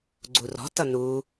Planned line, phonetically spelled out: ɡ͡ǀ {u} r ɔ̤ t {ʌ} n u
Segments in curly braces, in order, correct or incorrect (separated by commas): correct, correct